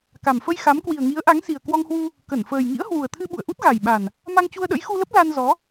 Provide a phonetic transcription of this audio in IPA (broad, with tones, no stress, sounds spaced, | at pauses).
k a˨˩ m f ə˧ j x a˨˦ m k w i˨˩ ə̯ ŋ i˨˦ ə̯ ʔ a˨˦ ŋ s i˨˩ ə̯ k w ɔ˧ ŋ h w u˧ | k ə˧˩ n f əː˨˩ j ŋ ḭ˧˥ ə̯ h w u˨˩ ə̯ t̪ʰ ɨ˧ ɓ ṵ˧˨ ə̯ ʔ u˦˥ t̚ ɣ a˨˩ j ɓ a˨˩ n | m a˧ ŋ t͡ɕ u˧ ə̯ ɗ ə̰˧˥ j x u˧ l ə˦˥ p̚ l a˧ n z ɔ˨˦